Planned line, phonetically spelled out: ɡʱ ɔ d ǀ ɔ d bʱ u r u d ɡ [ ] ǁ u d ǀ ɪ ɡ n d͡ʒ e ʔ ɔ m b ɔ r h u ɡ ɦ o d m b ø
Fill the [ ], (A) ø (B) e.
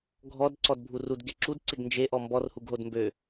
B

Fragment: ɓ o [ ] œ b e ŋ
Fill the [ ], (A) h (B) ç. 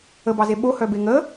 A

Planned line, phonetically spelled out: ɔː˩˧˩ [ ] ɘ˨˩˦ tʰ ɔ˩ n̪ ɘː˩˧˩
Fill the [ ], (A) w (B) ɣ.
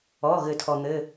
B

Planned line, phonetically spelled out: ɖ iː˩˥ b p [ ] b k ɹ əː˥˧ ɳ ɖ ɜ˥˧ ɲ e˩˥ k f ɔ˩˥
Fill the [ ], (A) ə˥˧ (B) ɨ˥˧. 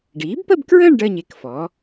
A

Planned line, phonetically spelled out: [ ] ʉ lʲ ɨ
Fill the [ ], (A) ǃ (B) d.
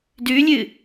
B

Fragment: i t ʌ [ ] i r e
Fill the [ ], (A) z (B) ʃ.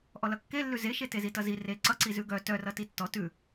A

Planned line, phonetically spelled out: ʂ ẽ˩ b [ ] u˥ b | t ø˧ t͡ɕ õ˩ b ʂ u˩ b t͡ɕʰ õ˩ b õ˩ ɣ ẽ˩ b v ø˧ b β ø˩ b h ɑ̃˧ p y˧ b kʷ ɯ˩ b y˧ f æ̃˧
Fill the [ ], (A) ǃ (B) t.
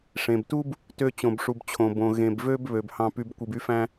B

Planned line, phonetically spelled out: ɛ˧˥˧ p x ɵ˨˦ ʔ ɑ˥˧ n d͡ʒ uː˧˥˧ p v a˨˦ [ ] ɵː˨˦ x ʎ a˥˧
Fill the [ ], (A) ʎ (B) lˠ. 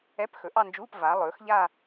B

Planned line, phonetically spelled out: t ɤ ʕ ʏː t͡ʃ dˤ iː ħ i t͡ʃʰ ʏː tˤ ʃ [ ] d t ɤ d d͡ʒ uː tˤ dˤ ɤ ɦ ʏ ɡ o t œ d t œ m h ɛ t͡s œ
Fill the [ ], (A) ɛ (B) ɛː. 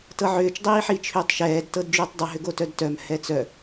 B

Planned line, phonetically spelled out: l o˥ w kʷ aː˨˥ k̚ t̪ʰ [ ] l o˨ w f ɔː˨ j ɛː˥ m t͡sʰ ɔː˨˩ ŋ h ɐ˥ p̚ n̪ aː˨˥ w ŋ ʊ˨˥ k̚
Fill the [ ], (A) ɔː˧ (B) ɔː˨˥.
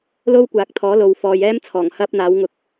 B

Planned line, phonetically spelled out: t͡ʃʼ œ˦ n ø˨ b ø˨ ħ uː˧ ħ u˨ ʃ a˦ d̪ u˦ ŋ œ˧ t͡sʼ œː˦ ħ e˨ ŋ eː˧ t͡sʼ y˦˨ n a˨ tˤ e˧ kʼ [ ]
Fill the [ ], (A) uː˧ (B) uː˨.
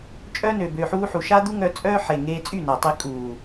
B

